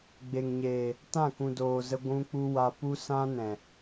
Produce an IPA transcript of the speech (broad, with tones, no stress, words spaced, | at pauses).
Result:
ɡ͡be˨ŋɲeː˨ | tã˦˨kũ˨ doː˨zə˧ ɡʷũ˧k͡pu˧wa˧pu˦ sã˦nɛ̃˨